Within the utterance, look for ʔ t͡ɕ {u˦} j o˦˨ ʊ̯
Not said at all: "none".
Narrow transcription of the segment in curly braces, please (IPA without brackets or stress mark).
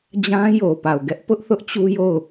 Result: u˦